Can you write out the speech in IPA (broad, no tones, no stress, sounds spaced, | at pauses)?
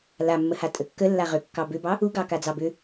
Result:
l a mː ə h a tʼ ə kː ə lː a ʁ ʏ kː ɑ b ʏ b ɑ | u ɡ ɑ k a d͡z ɑ b ʏ